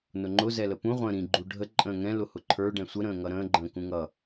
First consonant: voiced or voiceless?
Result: voiced